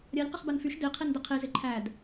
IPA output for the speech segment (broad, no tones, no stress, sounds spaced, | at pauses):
ɾʲ a lʲ q ɪ χ b a n f y ʃ d i qʰ i n d ɪ qʰ i z ɪ ǃʰ æ d